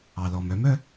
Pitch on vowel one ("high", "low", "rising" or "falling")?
low